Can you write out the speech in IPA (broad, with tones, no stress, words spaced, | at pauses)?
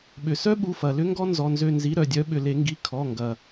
ɓʏ˩sœ˥ ɓu˩˧˩fɐ˩lʏ˥ŋɡɔ˥ nzɔ˩˧˩nzø˦˨nzi˨˦ ɾœ˩dʲœ˨˦ɓʏ˩ le˧˩˧ŋɡi˩˧˩ kʰɔ˩˧˩ŋɡɐ˩